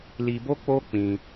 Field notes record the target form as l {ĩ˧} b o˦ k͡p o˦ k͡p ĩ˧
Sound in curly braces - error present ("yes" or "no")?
yes